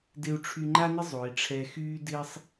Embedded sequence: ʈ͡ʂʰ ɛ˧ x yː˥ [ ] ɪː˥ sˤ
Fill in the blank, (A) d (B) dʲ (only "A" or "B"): A